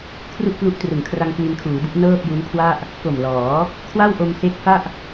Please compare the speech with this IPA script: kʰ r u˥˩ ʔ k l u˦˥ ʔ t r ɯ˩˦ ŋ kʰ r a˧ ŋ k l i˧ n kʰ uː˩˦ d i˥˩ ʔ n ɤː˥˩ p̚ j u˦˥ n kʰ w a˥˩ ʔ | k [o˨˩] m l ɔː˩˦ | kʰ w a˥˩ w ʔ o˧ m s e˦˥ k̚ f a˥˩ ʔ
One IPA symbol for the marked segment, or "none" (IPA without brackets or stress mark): o˨˩